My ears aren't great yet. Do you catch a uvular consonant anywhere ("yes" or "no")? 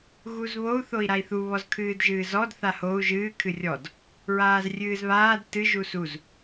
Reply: no